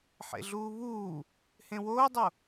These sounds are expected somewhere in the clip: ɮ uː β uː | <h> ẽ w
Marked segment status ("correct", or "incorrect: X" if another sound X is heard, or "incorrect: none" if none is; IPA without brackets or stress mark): correct